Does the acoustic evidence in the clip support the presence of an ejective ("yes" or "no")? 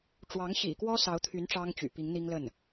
no